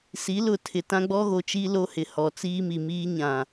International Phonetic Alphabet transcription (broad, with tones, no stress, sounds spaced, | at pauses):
s i˨˦ l ʊ˨ tʰ ɪ˨ t ã˦ ɡ͡b ɔ˦ ɣ o˨ t͡ʃ i˦ l o˦ h ɪ˨ h ɔ˨ t͡s iː˦ m i˨ m iː˦ ɲ ã˨